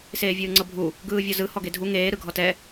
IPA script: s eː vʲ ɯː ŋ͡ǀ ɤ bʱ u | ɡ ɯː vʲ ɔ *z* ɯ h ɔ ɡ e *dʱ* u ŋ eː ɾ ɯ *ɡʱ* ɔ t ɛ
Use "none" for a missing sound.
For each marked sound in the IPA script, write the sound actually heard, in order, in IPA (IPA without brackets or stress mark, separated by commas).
z, dʱ, ɡʱ